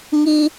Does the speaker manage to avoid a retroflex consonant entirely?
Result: yes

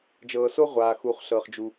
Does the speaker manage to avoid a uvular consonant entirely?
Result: no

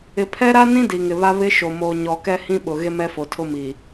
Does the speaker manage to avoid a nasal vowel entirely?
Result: no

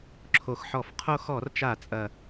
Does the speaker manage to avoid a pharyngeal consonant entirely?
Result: no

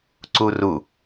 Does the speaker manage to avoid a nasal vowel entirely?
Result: yes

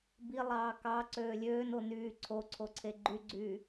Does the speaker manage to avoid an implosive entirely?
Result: yes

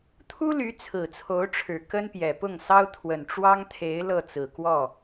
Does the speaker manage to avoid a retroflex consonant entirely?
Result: no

